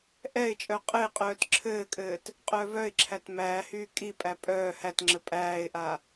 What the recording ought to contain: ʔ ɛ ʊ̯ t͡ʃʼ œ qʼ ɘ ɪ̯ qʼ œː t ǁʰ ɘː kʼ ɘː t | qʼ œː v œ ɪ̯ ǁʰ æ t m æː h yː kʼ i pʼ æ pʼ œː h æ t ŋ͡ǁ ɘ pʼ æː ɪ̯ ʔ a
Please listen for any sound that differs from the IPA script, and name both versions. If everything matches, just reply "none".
ʊ̯ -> ɪ̯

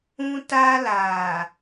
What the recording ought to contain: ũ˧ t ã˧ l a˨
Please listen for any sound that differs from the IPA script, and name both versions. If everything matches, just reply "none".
ã˧ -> a˧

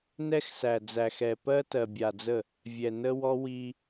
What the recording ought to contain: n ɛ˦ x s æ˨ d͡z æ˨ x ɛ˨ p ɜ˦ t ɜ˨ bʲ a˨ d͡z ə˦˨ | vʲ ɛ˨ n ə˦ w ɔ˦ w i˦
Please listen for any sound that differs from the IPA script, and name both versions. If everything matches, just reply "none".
none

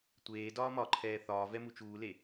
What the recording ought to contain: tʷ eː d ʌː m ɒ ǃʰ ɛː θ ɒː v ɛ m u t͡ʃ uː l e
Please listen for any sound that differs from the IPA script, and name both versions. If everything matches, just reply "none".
ʌː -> ɒː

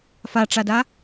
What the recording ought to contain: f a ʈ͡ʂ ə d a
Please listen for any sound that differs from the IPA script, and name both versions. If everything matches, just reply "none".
ə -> a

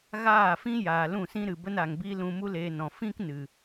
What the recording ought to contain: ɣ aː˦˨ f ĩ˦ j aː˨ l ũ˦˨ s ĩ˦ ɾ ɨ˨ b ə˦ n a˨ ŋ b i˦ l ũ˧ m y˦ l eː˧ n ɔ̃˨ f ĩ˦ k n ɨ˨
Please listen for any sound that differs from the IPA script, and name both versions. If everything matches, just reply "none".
y˦ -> u˦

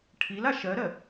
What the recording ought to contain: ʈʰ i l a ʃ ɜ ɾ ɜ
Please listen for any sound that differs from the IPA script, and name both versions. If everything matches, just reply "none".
none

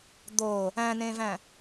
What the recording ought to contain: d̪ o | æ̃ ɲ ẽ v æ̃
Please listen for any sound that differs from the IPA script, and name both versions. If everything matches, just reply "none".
ɲ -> n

